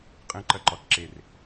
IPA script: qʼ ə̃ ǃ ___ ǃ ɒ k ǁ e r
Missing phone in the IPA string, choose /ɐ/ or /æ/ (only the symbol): ɐ